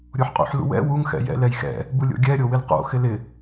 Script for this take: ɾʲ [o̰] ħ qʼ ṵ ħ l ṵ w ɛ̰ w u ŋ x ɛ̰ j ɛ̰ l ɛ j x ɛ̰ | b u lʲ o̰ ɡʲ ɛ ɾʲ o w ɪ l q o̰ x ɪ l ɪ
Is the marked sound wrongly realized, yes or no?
yes